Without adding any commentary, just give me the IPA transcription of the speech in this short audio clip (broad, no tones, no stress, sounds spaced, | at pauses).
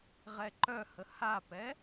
ʁ ɛ ǃ œ h ə h a p ɛ